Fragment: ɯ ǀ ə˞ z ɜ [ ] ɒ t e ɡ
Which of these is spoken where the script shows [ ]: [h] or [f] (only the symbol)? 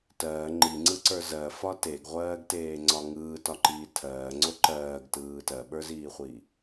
f